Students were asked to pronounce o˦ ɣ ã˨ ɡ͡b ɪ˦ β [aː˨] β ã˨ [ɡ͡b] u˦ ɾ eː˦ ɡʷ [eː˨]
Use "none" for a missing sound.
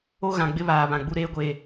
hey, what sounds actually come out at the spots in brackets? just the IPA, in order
aː˨, ɡ͡b, eː˨

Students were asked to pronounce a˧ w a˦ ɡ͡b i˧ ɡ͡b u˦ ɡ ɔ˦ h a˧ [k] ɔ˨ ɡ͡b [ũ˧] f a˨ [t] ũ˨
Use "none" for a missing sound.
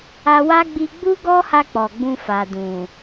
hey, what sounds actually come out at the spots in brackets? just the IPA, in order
k͡p, ũ˧, d

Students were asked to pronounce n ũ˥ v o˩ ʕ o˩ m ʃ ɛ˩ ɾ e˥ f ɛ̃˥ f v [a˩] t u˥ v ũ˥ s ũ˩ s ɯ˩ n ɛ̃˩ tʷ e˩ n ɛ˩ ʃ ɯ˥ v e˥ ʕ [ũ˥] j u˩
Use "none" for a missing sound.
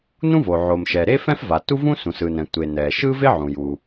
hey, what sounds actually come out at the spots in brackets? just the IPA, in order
a˩, ũ˩

